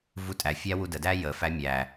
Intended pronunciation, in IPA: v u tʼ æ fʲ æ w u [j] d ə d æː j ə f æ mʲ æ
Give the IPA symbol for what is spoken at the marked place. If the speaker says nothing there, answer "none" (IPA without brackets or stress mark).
none